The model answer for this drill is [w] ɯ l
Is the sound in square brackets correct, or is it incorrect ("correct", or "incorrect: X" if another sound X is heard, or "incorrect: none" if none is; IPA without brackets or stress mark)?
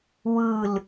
correct